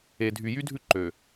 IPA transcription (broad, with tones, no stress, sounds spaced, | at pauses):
e˨ dʱ y˨ j y˦ dʱ ʉ˦ ǃ ø˨